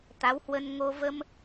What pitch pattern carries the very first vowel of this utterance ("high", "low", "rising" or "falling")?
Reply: rising